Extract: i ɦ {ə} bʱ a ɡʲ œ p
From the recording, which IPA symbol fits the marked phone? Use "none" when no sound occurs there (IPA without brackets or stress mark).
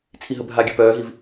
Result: ə